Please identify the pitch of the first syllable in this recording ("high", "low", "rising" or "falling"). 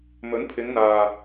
rising